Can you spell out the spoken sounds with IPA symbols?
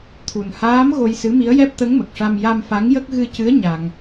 t̪ʰ u˨˩ n h aː˧˥ m ɣ o˧ j s ɨ˧˥ m i˧˥ ə̯ j ɛ˦˥ p̚ t̪ ə˧˥ ŋ m ə˨˩ k̚ ʂ a˧ m j a˧ m f a˧˥ ŋ j ə˦˥ k̚ ɣ ɨ˧ c ɨ˧˥ ə̯ ɲ a˧ ŋ

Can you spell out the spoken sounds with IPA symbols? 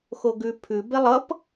x o ɡ ʉ pʰ ʉ b e lˠ ʌ p

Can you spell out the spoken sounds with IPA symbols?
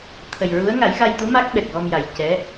t̪ʰ ə˨˩ j ɹ u˧˥ ə̯ ŋ a˨˩˦ j ɣ a˧ j t̪ u˧˥ m a˦˥ k̚ ɓ ɛ˨˩ k̚ ɣ ɔ˧ m j a˨˩ j c ɛ˧˥

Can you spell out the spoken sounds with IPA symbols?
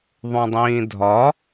ðˤ ũ dˤ ĩː dʱ ɒ

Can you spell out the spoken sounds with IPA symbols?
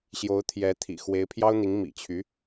ɕ j o˧˥ ʊ̯ t̪ʰ j ɛ˧˥ t̪ʰ ḭ˨˩ x w e˧˥ ɪ̯ pʰ j ɑ˥ ʊ̯ n̪ i˧˥ ŋ m ḭ˨˩ t͡ɕʰ y˧˥

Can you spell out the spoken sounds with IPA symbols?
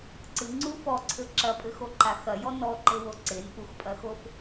ǀ ɨ ŋ͡ǀ u f ɔ ǀʰ ɘ ǁ ɐ pʼ ɘ x o ǃ a x ɐ j ɔ n ɔ ǃ ɘ w o ǀ e n ʔ u x pʼ ɐ x o f

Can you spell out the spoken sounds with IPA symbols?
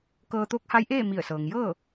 k ɤː˧ t̪ oː˧˥ k̚ h a˧˥ j ʔ eː˥˨ m i˧˩ ə̯ s ɤː˩ ŋ j ɤː˥˨

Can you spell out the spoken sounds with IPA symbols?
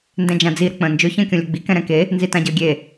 n d ɛ̃ d͡ʒ ã d͡z i ɾ ə k͡p ə̃ː n d͡ʒ ɵ ç ə̃ː kʲ õ lʲ ɵ ɡ͡b i k ɛ̃ ɾ ɛ̃ k e | n z i t ã ɟ əː ɡʲ e

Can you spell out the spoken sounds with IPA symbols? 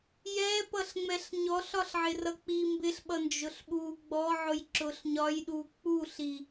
j ɛ p ʌ ɬ ŋ͡m ɛ ɬ ɲ ɔ ɬ ɒ ɬ ʕ ɪ r ʌ k͡p i m b ɪ ɬ ɓ ʌ n d͡ʒ ʊ ɬ ɓ u ɡ͡b ɔ ʕ ʊ j ǁ ʊ ɬ ɲ ɒ j ɗ u k͡p u ɬ i

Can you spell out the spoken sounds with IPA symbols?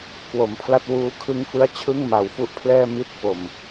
k w o˩˦ m pʰ l a˥˩ t̚ w uː˧ kʰ ɯ˦˥ ŋ f ɯ˦˥ a̯ t͡ɕʰ ɯ˥˩ ŋ m a˨˩ w f u˦˥ ʔ pʰ l ɛː˥˩ m i˥˩ t̚ f o˨˩ m

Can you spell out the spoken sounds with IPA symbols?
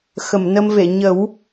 x ə˨˩˨ m n ə˧ m v e˨˩˨ ɲ ə˨˩˦ w

